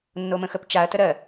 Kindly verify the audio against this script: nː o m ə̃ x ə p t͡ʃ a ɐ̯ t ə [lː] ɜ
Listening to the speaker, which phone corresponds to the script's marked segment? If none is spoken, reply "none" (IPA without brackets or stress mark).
ɾ